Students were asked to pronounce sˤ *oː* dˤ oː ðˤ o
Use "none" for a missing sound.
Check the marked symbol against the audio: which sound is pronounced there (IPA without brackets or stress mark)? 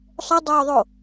o